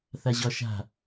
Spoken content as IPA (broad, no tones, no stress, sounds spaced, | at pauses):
θ a ʑ ɒ ʃ a̤